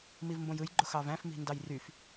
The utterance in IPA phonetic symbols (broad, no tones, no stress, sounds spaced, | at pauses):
m i v m b õ j ɯ j ɡ͡ǃ o x ɑ v æ̃ f m i̤ n d ɑ j r y f